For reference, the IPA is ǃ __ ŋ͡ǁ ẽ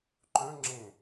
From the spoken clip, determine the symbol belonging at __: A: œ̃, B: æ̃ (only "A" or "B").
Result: A